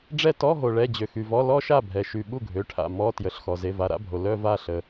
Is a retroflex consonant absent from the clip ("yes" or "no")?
no